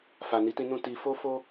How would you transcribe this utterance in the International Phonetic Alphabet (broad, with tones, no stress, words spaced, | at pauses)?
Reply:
fa˨ni˨˦tĩ˧ nũ˦ti˧ fo˦fo˦